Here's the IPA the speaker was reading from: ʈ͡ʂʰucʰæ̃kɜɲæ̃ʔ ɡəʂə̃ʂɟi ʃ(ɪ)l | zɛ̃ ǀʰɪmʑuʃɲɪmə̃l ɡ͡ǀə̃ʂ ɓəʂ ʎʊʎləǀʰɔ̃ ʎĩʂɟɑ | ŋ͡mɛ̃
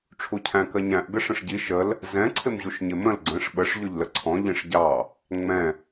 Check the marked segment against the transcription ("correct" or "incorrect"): incorrect